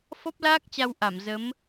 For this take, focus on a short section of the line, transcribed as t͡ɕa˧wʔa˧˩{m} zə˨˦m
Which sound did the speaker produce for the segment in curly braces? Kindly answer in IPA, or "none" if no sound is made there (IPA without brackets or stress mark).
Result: m